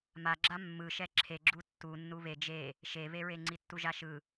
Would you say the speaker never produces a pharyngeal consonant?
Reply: yes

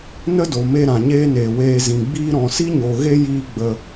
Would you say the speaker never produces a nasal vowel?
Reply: no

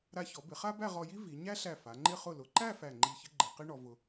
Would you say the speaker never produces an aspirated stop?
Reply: yes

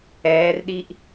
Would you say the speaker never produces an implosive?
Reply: no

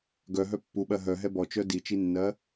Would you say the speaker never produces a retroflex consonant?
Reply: yes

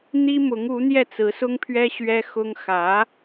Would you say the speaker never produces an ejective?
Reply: yes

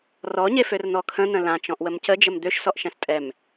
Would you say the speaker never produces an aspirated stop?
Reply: no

